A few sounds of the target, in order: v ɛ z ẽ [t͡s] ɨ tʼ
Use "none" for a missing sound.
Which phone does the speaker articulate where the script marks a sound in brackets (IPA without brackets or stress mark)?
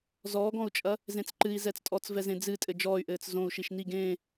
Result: d͡z